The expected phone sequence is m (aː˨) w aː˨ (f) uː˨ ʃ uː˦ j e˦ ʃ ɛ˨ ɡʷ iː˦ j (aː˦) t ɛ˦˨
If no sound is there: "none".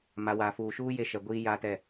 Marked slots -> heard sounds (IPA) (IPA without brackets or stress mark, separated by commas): a˨, f, aː˦